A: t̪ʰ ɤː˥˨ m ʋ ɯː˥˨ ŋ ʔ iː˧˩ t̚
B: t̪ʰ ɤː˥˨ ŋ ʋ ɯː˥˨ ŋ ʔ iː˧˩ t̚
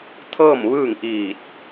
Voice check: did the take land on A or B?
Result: A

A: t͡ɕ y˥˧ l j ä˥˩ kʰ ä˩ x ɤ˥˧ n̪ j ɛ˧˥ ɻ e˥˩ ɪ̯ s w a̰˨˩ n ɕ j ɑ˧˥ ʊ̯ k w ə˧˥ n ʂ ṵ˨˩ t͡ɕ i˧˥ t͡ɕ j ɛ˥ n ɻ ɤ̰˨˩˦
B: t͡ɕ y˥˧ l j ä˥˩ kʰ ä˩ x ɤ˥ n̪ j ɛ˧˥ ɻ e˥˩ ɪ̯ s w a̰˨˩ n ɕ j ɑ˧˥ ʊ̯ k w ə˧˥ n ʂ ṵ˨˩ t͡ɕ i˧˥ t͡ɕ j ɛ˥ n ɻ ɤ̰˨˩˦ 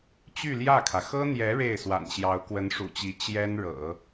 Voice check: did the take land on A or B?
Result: B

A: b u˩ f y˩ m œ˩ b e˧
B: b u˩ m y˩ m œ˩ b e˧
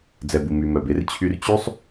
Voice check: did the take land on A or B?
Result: B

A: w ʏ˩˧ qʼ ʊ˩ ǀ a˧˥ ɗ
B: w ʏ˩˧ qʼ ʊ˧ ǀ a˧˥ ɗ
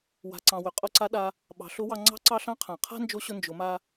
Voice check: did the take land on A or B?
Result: B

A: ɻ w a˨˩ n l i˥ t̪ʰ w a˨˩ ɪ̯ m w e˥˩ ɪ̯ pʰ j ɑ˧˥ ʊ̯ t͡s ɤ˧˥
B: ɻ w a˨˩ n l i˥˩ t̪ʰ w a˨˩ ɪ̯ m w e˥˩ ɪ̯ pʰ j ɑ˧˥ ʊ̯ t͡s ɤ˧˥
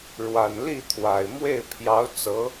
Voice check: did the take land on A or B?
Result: B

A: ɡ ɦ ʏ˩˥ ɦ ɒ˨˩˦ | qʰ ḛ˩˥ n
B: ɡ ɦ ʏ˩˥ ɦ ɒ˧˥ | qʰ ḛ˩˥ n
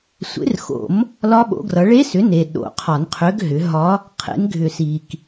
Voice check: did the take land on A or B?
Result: B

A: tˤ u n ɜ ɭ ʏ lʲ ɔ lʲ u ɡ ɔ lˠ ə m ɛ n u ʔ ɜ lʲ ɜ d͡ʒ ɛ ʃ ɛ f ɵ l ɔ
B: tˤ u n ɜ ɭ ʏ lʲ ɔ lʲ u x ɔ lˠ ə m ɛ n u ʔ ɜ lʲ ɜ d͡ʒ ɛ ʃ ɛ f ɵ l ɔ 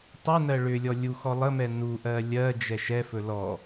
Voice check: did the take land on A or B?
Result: B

